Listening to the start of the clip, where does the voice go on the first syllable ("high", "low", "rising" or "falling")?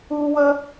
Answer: high